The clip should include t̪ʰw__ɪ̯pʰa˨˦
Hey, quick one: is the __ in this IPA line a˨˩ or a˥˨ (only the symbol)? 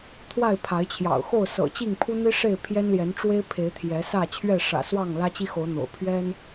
a˥˨